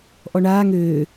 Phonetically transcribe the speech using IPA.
ʔ ɔ ɳ aː ŋ øː

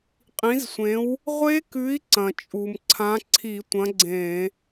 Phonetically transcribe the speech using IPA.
qʼ ĩ˨˥ z sʷ ẽ˨˥ w | ʁʷ e˦˥ k ʉ˨˥ i̯ ǀ ɐ̃˩ t͡ʃʼ u˩ m ǀʰ ã˨˥ ǀʰ i˧˩˧ tʷ ɐ̃˨˥ ɡ͡ǀ ẽ˧˩˧

